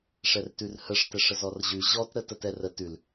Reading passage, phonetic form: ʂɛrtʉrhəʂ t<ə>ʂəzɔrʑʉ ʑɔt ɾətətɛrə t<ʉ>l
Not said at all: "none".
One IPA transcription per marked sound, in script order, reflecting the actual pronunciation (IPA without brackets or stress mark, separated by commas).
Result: ɛ, ʉ